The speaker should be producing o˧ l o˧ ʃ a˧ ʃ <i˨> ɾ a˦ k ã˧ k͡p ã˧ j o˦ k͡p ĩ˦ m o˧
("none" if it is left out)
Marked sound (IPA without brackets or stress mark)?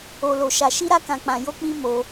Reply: i˦